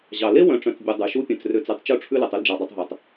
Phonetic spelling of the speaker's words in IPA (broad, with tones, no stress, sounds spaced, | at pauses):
ʑ ɑ˩ l e˥ w œ̃˨ ʈ͡ʂ œ̃˨ t͡s bʲ u˨ dˤ ʉ˩ ʃ u˥ pʲ œ̃˨ t͡s r ø˦ t͡s ʉ˨ tˤ t͡ʃ u˥ ʈ͡ʂʰ ʉ˥ l ʉ˩ tˤ y˥ l d͡ʒ ɑ˩ dˤ e˨ tˤ ɦ œ˩ tˤ